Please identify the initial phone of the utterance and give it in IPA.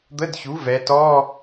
d̪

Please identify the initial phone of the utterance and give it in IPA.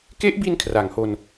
k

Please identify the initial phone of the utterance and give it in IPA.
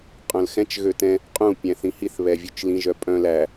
qʼ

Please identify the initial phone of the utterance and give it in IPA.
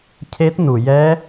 cʰ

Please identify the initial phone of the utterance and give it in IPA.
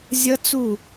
zʲ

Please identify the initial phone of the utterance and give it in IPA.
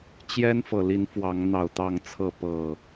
t͡ɕ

